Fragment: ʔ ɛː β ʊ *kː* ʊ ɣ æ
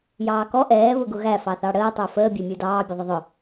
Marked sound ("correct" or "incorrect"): incorrect